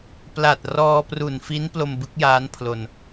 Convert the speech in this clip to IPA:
p l a˨˩ t̚ r ɔː˧ p r u˨˩ n f i˦˥ n p l o˧ m b ɯ˦˥ k̚ j aː˦˥ n pʰ l o˧ n

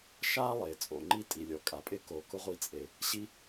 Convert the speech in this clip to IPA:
ʃ a˥ lˠ e˩ t͡sʼ o̰˩ ŋ͡ǃ i˥ tʼ i˩ lʲ ɔ˩ kʼ a˩ pʼ ɪ˥ k o˩ k ʊ˥ ʁʷ i˥ t͡sʼ e˩ | ɕ i˥

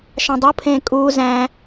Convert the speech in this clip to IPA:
ʃ ɑ̃ dˤ u pʰ ẽː kʼ uː z æ̃ː

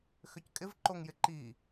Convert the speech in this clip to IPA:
x ʏ c kʼ ɪ v ǃ o ŋ j ɪ ǃ i

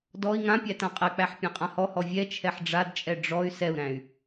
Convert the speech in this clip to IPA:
d ɔ i̯ ŋ ã pʲ æ t ã qʼ ɛ k͡p æ ħ pʲ æ̃ qʼ ã h ɔ h ɔ vʲ ɛ t͡ʃʰ ɛ ħ ɖ͡ʐ a d t͡ʃʼ ɛ ɖ͡ʐ ɔ y̯ s ɛ u̯ ɾ æ̃ y̯

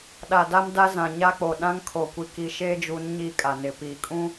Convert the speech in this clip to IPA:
ɗ a˨ d a˦ m d a˦ z ã˨ ɲ a˦ k͡p o˨ ɗ ã˦ ŋ kʰ o˨ kʷ i˨ k i˨ ʃ eː˦ d͡ʒ u˨˦ n ɲ i˦˨ kʼ a˨ n ɪ˨ p iː˨ kʼ ũ˦

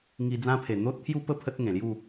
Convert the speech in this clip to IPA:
ŋ i˧ d͡z ã˦ pʰ e˨˩ n̪ o˦ t̚ t̪ʰ j u˦ p ə˥˧ pʰ ə˦ t̚ ŋ ẽ˨˩ l j u˥˧

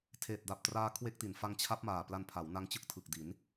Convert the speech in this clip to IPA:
tʰ eː˨˩ t̚ d a˨˩ p̚ t r aː˦˥ kʰ w e˦˥ k̚ t i˩˦ n f a˧ ŋ t͡ɕʰ a˦˥ p̚ m aː˨˩ p l a˧ n pʰ a˩˦ w n a˦˥ ŋ t͡ɕ ɯ˥˩ k̚ tʰ ɯ˨˩ k̚ d i˩˦ n

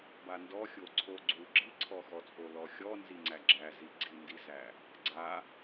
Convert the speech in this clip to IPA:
b a n d ɔ xʲ o ǀʰ o ɡ͡ǀ u ɡ͡ǁ i ǀʰ ɔ x ɔ t͡sʼ o l ɔ xʲ ɔ n z i ŋ͡ǀ æ ɡ͡ǁ æ z i ɡ͡ǀ i n d i z æ | ɡ͡ǀ a

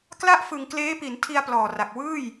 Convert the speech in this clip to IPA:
k l a˥˩ ʔ f ɯ˨˩ ŋ k l eː˦˥ p i˩˦ n tʰ i˧ a̯ p l ɔː˨˩ r a˨˩ k̚ w ɯː˥˩ j

